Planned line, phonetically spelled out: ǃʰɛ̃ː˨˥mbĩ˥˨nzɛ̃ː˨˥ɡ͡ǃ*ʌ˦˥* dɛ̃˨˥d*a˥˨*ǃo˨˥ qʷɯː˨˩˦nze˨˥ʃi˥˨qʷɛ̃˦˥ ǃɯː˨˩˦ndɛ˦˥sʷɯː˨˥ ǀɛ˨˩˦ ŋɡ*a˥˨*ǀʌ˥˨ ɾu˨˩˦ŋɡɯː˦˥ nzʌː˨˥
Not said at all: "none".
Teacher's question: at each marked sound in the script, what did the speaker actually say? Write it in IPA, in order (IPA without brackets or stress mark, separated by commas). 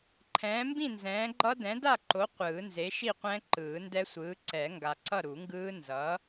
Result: ʌ˦˥, a˥˨, a˨